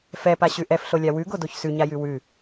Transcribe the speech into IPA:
f ɛ p a ɕ ʉ ʔ ɛ f ɬ o lʲ a w ʉ ɡ o d o ç s ʉ ɲ a j ʉ w ʉ

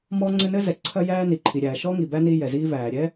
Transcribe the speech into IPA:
m ɔ˥ ŋ͡ǀ ɘ˥ n ɘ˥ z ɛ˩ ǀʰ ɐ˥ j æː˥ n i˩ ǃʰ i˩ ɾʲ æː˩ ʃ ɔ˥ ŋ i˩ b æ˥ n i˥ j ɛ˩ z iː˥ v æː˩ ɾʲ ɛ˥

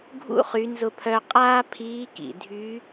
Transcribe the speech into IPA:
ɡʱ ṵ˧˥ χ y˩˧ n z ʊ˧ pʰ œ˧ qʼ aː˥ pʰ iː˧˥ k ḭ˩ dʱ y˧˥

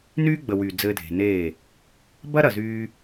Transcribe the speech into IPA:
n yː˦ ɡ͡b ə˨ w y˨ d͡z ɘː˧ dʱ e̤˨ n eː˦˨ | b ɐ˦ ɾ ɐ˨ z yː˧

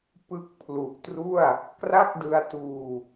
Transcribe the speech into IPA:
p ɯ˦˥ k̚ pʰ l u˨˩ ʔ t r u˥˩ a̯ | k r a˥˩ k̚ d ɯ˧ a̯ t uː˧

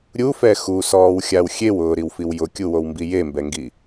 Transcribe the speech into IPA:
ɾʲ u f ɛ x u s ɔː w xʲ a w xʲ e w ʊː ɾ i w f i w j ʊ kʲ u w o w m b i j e m b ɛ ŋ ɡ i

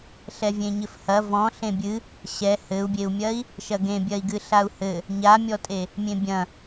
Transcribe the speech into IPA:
ɬ ɛ vʲ ẽ ɲ ɘ f h ɐ v ɔ̃ ɬ ẽ bʲ ɨ | ɕ ɛ h ɘ u̯ bʲ e u̯ mʲ ɐ i̯ | ʃ ɐ ɡ ẽ bʲ ɐ i̯ ɡ ɨ ɬ a u̯ h ɘ | ɲ a mʲ ɔ tʼ e | mʲ ẽ bʲ ɐ̃

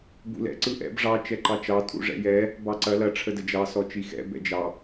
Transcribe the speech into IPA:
b ṵ l ɛ̰ ǀ ɯ ʔ ɛ̰ b ʐ ɑ t͡ʃ ɛ ǃ ɑ t͡ʃ ɑ tʼ ṵ ʐ ɛ̰ j ɛ | b ɑ ǀ ɐ l ɐ ʈ͡ʂʰ ə d ə d͡ʒ ɑ s ɔ t͡ʃ i x ɛ̰ b ɛ̰ d͡ʒ ɑ

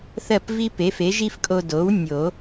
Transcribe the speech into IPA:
θ ɜ˥˩ p v i˥ p e˩˥ f e˩˥ ʒ i˥ f kʼ o˧ d o˩˥ w nʲ o˨˩˦

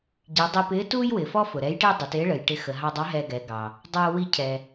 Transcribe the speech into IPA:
ɟ i˩˧ dˤ i˧ p ɪː˧˥ t uː˥ j w ɪː˩ f ɔ˥ f ʊ˩ ɾ ɛ˧˥ j ʈ ɪː˥ dˤ ə˩˧ t ɪː˧˥ ɭ ə˩ j ʈ ɪ˧ x ə˩ ɦ ɑ˧ dˤ ɑ˧˥ ɦ ɛ˧ ɡ ɛ˩˧ ɡ ɑ˩ | dˤ ʊː˧ w i˧ cʰ ɛ˩

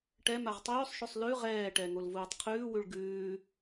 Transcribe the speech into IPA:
ʈ ɛ m a ʁ tˤ ʉː sˤ ʃ ʉ sˤ l ʉ ʁ ɛː ʈ ɛ ŋ o l v uː tˤ qʰ ʉː w ʉ ɭ ɡ ʉː

